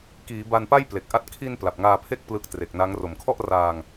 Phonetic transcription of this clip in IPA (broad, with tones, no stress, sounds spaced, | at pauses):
k iː˩˦ b a˧ n p a˥˩ j p l e˨˩ k̚ ʔ a˥˩ t̚ kʰ i˧ n p l a˨˩ p̚ ŋ aː˧ pʰ e˥˩ k̚ p l ɯ˦˥ k̚ t r e˨˩ k̚ n a˦˥ ŋ r o˩˦ m kʰ ɔ˥˩ ʔ r aː˧ ŋ